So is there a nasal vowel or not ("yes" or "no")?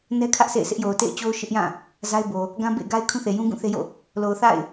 yes